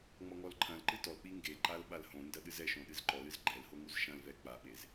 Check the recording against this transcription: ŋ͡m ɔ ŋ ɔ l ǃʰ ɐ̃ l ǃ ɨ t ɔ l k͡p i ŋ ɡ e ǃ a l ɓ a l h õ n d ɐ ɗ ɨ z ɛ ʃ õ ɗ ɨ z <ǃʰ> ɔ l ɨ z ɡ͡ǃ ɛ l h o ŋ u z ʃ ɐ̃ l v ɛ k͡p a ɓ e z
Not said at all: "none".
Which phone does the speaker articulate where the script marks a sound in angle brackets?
ǃ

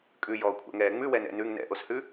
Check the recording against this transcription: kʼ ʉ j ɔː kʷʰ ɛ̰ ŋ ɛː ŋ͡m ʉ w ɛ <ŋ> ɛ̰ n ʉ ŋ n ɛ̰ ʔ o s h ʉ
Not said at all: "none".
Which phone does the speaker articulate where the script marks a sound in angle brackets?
n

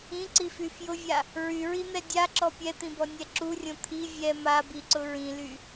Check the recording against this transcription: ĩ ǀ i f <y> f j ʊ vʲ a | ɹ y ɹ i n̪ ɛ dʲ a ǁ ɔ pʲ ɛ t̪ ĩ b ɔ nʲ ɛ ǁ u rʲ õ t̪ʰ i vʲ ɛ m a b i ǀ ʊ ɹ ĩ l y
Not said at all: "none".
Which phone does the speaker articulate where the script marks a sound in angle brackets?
y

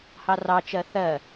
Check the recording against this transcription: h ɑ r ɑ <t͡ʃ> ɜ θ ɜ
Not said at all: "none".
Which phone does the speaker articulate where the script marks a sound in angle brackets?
t͡ʃ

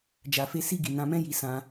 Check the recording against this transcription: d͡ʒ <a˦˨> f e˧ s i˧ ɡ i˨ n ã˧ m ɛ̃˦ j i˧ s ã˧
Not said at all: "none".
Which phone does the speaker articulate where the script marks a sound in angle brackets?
a˨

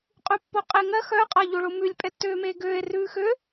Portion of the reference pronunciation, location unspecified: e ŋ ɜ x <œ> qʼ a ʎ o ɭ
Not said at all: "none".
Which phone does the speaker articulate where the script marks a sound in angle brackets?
œ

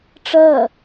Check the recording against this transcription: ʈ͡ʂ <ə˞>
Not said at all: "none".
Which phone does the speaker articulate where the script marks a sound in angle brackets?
ɜ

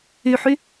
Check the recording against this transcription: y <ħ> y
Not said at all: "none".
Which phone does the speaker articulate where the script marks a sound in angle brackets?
ħ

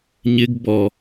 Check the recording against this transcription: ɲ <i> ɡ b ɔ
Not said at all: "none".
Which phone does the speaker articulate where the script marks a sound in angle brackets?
ɪ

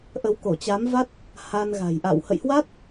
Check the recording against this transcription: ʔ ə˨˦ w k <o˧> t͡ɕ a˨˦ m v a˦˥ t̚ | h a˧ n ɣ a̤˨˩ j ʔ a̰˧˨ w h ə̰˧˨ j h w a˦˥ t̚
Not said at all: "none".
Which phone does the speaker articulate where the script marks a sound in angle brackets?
o˧˩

